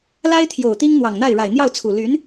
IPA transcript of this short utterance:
l a˥ ɪ̯ t̪ʰ j o˨˩ ʊ̯ t̪ i˥ ŋ n̪ w ɑ˨˩ ŋ n̪ a˥˩ ɪ̯ ɻ a˨˩ ɪ̯ n̪ j ɑ˥˩ ʊ̯ t͡sʰ u˨˩ l y˧˥ n

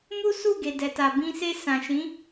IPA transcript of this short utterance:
m u˦ s u˦˨ ɡ e˨ d ɛ˨ t a˨ b ĩ˧ s e˧ s ã˨ ʃ ĩ˨˦

